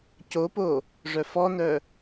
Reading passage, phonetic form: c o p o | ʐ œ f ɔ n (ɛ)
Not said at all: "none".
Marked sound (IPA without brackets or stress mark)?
œ